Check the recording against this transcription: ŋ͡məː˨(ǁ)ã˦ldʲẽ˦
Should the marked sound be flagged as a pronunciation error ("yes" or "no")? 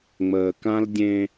yes